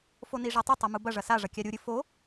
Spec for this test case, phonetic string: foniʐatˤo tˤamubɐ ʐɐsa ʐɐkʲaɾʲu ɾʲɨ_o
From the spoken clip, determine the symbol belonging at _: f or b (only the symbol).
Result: f